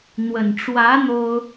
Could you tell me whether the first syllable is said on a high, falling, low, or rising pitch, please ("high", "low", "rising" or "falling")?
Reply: low